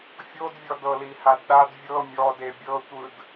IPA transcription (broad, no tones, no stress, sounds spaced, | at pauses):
fʲ o d vʲ ɔ d ɤ l i h a d ɗ a d vʲ ɤ mʲ ɔ d e bʲ ɤ tʷ ɯ d